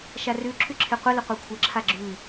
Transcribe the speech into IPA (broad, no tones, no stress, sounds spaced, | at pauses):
ʃ a r ʉ ǁʰ ʉ ǁʰ e qʷ ə l ə qʷ a kʷʰ ə ǁʰ a ɡ͡ǁ ʉ